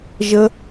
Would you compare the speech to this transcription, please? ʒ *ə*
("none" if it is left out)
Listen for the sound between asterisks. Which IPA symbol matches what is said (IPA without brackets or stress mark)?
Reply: ə